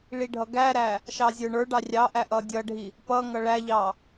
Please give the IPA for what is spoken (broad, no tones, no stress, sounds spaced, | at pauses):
ɭ i ɖʱ ʌ ɡ æ ɾ æ | ʃ ɑ zʲ ə˞ ɳ ə˞ ɖ ɑ rʲ ɑ ʔ æ ʔ ʌ dʲ ʌ ɖʱ i | p ʌ ŋ ʌ ɭ æ ʎ ɑ